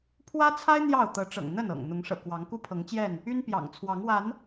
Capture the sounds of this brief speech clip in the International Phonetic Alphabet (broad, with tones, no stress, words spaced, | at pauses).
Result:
pʰwä˦t͡sʰa˦ɪ̯ n̪jɑ˥˨ʊ̯ t̪ɤ˨˦ʈ͡ʂɤ̰˨˩ŋ n̪ə˥˨nɤ̰˨˩ŋ n̪ʊ˨˦ŋʂɤ̰˨˩kwɑ˨˦ŋ ku˦pʰɤ˨˦ŋt͡ɕjɛ˥˨n | y˦npjɑ̰˨˩ŋt͡sʰwɑ˨˦ŋwa˨˦n